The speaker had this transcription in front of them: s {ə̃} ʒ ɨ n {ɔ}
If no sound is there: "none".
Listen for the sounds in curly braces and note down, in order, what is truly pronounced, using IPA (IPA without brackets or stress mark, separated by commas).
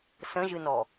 ə̃, ɔ